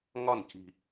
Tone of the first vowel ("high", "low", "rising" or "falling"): falling